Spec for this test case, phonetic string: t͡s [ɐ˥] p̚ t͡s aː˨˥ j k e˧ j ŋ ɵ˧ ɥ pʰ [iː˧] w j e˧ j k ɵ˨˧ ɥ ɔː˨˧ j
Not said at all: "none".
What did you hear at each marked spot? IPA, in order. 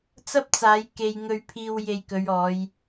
ɐ˥, iː˧

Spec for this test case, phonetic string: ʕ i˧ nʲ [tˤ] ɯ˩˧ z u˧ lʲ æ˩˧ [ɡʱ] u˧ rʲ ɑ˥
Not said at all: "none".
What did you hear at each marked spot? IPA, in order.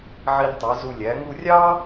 tˤ, ŋ

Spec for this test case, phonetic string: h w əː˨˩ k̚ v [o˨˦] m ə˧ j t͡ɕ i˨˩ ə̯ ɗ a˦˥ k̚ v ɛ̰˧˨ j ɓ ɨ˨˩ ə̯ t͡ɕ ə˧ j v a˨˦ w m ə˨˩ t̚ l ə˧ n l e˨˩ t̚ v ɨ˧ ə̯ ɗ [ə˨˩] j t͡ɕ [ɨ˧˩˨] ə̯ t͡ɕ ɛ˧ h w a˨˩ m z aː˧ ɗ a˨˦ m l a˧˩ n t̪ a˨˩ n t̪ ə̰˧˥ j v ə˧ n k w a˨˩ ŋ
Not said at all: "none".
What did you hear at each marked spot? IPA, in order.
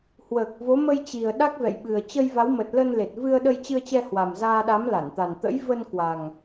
o˨˦, ə˧, ɨ˧

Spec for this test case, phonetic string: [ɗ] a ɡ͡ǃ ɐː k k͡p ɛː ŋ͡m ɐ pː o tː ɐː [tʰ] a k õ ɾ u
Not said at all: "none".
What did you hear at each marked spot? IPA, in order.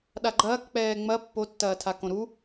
ɗ, tʰ

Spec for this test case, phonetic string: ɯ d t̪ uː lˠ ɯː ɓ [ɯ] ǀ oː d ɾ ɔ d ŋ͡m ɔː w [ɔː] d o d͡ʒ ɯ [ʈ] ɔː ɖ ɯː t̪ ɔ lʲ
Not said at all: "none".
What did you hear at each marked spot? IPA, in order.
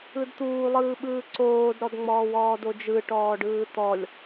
ɯː, ɔː, ʈ

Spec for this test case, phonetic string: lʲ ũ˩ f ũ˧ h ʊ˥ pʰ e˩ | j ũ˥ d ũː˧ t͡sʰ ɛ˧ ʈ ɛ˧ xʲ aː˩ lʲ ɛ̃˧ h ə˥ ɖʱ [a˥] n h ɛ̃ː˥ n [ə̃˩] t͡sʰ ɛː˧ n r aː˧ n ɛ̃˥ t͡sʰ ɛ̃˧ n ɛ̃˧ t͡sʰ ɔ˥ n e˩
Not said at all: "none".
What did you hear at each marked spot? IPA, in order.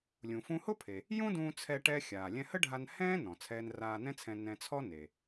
a˧, ɔ̃˩

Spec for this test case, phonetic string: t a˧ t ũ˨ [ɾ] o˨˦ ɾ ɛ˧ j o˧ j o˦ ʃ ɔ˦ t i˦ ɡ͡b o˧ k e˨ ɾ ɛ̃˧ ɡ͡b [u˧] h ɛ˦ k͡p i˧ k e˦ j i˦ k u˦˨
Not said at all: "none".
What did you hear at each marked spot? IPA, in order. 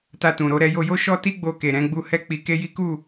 ɾ, u˧

